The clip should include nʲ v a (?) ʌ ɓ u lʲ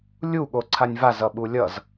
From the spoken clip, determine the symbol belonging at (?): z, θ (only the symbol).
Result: z